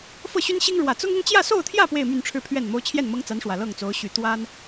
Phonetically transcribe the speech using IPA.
f ɤ˥˩ ɕ y˥ n ɕ i˥ ŋ ɻ w ä˨˩ t͡s ʊ˥ ŋ ʊ˥ ŋ t͡ɕ j ä˥˧ s o˥˧ ʊ̯ t̪ʰ j ä˥˧ p w e˥˧ ɪ̯ m y˥˧ n ʈ͡ʂʰ ɻ̩˥˧ pʰ ɥ ɛ˥˩ n m o˥ ʊ̯ t͡ɕʰ j ɛ˥˩ n m ɤ˥ ŋ t͡s a˧˥ n ʂ w ä˨˩ l ɤ˥˩ ŋ t͡s o˧˥ ʊ̯ ɕ y˨˩ t̪ w a˥ n

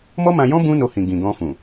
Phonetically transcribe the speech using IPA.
m ɔ˦ m ã˧ j ɔ̃˦ b ũ˦ n o˧ h ĩ˨ ɡ ĩ˨ ɡ ɔ̃˧ f ũ˨

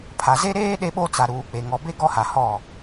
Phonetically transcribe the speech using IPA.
pʰ a˨ z e˦ ɾ eː˦ ɗ e˦ ɓ o˦ t͡s a˨ ɾ uː˨ k͡p e˨ ŋ ɔ˨ b e˦ ɡ ɔ˦ h a˨ h ɔ˦˨

